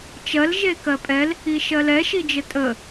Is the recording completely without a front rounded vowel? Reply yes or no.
yes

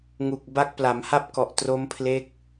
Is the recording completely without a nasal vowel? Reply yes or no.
yes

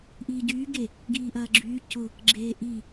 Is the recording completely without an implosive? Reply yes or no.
yes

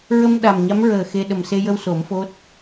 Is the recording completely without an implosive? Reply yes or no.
no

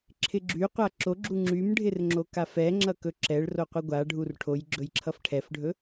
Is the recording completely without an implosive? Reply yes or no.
yes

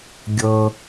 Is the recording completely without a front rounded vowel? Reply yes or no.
yes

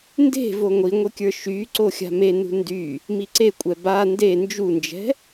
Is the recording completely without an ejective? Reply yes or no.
no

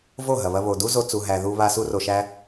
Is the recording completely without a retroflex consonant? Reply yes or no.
yes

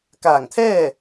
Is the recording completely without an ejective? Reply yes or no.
yes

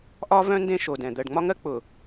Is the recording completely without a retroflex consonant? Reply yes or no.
no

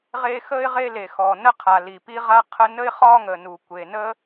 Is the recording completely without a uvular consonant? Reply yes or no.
no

